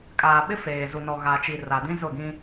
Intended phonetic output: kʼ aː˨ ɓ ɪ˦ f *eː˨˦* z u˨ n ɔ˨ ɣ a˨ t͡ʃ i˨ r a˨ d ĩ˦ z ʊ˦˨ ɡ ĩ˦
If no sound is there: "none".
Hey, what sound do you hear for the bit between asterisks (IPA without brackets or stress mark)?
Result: eː˨